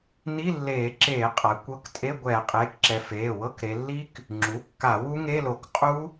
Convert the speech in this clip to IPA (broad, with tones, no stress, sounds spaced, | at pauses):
n i˧˥˧ lː eː˧˩˧ ǁ eː˧˩˧ qʼ a˩˧ kʷ ɤ˧˥˧ k tʼ e˧˥˧ ɡʷ ɛː˧˩˧ qʼ eː˩˧˩ k ǁ ɛ˩˧ f eː˩˧˩ w ɤ˧˥˧ k ɾ e˩˧ lː i˦˥ k | ŋ͡ǁ u˩˧˩ kː a˧˩˧ w u˦˥ ŋ e˧˥˧ l o˧˩˧ k qʼ u˦˥